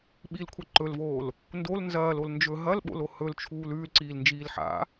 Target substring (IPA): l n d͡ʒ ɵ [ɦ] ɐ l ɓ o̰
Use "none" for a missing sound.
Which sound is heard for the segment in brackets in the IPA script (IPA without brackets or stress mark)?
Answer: ɦ